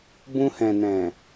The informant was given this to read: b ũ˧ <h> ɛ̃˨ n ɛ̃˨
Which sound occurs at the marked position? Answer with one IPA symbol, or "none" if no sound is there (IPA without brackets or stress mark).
h